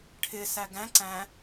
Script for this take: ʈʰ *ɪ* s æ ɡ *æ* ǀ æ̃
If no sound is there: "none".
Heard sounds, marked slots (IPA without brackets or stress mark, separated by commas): ɪ, æ̃